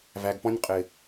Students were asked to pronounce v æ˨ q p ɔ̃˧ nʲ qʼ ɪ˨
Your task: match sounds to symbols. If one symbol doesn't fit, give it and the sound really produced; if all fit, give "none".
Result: q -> ɡ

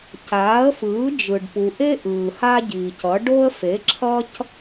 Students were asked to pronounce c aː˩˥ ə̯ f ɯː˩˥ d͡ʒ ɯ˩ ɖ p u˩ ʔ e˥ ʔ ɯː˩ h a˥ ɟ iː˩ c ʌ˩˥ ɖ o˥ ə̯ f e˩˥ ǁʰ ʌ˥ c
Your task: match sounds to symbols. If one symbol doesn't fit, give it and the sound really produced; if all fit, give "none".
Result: none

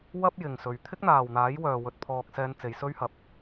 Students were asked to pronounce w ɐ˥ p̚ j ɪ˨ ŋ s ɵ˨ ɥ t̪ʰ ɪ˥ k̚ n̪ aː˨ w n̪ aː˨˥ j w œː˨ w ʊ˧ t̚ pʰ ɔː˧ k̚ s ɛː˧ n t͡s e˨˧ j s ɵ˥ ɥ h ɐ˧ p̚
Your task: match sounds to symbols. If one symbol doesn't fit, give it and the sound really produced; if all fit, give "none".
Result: ʊ˧ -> ɵ˧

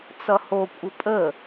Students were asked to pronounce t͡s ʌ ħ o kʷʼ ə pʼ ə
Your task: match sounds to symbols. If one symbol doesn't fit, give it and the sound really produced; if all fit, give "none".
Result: ħ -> h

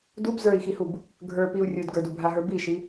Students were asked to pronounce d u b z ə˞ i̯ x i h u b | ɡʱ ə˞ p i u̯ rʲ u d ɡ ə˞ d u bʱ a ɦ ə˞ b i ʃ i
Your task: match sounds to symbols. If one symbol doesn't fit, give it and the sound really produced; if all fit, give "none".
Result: none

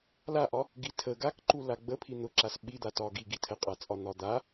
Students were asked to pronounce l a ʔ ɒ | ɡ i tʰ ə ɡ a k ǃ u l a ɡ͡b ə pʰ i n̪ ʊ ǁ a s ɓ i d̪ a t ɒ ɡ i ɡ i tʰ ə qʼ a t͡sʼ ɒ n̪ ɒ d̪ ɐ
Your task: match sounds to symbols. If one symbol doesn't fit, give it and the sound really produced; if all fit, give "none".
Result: ɐ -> a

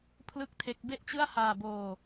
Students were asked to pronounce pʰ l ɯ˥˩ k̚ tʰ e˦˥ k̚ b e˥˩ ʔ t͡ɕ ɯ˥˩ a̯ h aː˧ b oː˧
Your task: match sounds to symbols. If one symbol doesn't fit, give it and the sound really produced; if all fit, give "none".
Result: none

